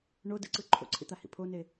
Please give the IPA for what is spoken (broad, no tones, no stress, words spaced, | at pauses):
ɳo dɯǀɯ ǃʰo̰ǀʰḭt̪ahḭ pʰone